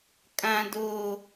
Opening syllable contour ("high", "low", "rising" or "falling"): high